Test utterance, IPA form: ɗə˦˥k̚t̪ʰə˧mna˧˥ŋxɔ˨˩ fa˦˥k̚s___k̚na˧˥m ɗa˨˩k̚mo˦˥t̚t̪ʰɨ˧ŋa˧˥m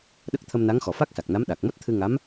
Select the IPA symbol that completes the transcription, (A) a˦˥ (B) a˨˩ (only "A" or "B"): B